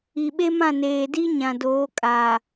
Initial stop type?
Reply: implosive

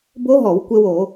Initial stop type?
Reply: plain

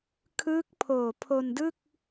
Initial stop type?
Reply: aspirated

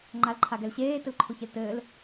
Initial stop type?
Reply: click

